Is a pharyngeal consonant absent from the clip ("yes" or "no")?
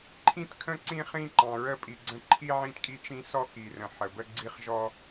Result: no